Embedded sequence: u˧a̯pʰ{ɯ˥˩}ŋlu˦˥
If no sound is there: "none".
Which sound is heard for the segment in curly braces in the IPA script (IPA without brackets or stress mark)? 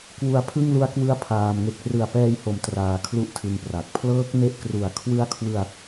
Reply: ɯ˥˩